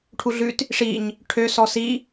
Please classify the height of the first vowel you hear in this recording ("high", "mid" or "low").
high